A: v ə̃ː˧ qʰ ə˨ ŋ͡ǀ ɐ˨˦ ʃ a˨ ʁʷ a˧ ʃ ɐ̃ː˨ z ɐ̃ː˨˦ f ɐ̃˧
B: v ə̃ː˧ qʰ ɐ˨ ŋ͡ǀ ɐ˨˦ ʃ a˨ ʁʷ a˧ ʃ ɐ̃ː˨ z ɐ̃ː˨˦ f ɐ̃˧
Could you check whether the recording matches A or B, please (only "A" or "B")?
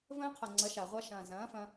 B